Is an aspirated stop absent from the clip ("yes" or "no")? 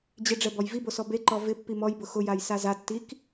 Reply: yes